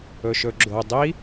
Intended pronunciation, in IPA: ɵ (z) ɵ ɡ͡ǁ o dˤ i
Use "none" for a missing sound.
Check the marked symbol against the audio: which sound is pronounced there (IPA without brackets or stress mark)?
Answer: ʃ